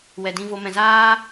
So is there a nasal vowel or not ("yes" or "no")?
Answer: yes